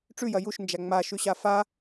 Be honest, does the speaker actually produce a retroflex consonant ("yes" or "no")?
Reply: yes